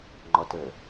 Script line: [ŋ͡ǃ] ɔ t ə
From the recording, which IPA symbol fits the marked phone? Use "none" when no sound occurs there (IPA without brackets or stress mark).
ŋ͡ǃ